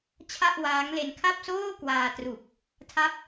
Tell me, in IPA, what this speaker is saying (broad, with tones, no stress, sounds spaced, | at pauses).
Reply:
t͡ɕʰ a˥˩ ʔ w aː˦˥ ŋ l e˧ n kʰ a˥˩ p̚ s oː˥˩ k w aː˧ t r u˨˩ k̚ | tʰ a˦˥ p̚